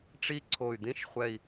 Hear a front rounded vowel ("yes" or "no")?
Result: yes